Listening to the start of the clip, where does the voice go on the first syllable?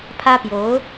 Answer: high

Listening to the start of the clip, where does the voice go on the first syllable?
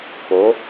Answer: rising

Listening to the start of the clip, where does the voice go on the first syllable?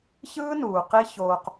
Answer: high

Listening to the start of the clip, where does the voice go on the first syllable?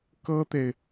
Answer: high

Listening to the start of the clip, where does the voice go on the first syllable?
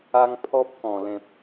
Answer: high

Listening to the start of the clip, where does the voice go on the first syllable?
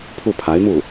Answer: falling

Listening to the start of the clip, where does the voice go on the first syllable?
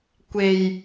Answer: low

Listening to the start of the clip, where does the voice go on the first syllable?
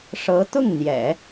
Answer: rising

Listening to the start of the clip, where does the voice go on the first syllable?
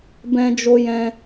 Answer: high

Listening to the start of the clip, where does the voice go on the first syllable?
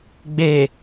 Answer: low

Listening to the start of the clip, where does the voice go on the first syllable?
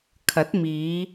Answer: rising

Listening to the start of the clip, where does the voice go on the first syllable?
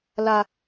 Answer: high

